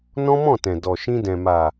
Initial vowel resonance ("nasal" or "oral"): nasal